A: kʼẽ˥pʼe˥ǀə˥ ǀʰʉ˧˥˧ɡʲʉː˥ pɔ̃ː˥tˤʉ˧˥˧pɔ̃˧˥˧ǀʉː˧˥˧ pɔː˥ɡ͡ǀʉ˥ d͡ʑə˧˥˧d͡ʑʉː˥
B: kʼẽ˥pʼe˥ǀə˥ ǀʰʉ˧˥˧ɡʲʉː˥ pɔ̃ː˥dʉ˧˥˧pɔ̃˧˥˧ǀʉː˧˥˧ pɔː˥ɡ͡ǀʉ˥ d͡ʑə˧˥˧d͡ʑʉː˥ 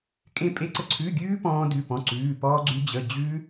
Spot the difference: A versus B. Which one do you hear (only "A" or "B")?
B